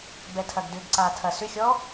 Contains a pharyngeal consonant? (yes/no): no